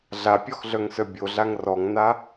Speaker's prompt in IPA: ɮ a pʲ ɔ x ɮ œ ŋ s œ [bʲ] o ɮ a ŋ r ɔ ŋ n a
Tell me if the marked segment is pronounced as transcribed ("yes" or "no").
yes